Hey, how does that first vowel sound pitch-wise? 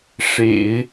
low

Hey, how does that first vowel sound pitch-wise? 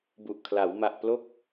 low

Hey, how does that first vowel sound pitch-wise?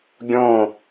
falling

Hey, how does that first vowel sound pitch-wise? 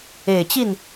low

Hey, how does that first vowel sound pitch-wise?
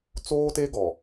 high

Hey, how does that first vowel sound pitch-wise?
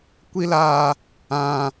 high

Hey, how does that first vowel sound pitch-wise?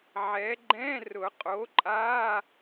rising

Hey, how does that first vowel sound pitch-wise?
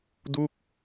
falling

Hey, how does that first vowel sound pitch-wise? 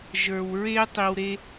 low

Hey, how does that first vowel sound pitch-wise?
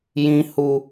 low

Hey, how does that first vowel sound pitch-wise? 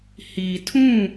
low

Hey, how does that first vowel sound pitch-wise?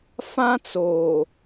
high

